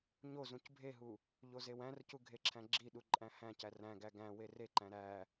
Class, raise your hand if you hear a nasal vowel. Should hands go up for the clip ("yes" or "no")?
yes